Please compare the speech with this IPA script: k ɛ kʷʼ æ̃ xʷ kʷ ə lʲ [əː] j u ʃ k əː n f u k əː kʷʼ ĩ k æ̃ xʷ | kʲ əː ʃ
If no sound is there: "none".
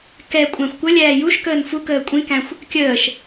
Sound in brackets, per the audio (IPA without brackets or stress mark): æː